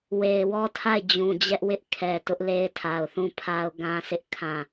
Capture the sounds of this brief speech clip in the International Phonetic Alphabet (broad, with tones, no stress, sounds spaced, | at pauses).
w e˨ ɪ̯ w ɔ˦ tʰ a˦˨ ɪ̯ d͡ʑ ũ˨ d͡ʑ ɛ˦ ʔ w ɪ˦ ʔ kʰ ɛ˨ t ʊ˦ ʔ l e˦ ɪ̯ tʰ a˨ ʊ̯ θ ũ˦˨ pʰ a˦ ʊ̯ ɡ ã˦ sʰ ɪ˦ ʔ kʰ ã˦˨